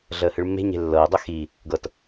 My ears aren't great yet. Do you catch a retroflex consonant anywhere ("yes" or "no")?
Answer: yes